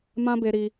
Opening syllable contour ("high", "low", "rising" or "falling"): high